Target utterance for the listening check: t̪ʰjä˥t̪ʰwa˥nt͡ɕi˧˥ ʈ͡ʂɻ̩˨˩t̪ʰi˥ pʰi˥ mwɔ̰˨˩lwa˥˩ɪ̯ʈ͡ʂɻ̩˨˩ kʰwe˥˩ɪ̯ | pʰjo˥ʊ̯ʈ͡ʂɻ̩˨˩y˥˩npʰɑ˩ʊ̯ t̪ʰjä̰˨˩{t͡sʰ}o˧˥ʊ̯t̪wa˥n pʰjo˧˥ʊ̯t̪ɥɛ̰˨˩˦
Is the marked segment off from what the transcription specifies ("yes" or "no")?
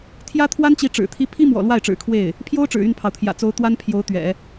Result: yes